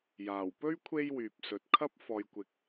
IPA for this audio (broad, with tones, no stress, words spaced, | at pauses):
jaː˨˩wpɵ˥ɥ kʷʰe˥jwyː˨p̚ sɵ˨˥t̚kʰɐ˥p̚ fɔː˨jkʷɪ˨k̚